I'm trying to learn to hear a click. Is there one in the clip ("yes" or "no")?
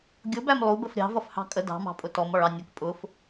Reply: no